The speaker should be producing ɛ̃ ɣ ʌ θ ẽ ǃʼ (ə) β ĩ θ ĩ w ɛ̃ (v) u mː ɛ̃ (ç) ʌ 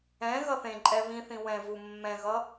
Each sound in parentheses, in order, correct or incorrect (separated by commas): incorrect, correct, incorrect